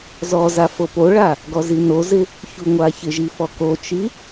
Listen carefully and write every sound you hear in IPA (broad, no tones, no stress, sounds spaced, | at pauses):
z ɔ z a f o p o ɭ a | ɡ ɔ z i n o z ɪ | ç u ŋʷ a ç ɪ ʒ i f ɔ k o t͡ʃ i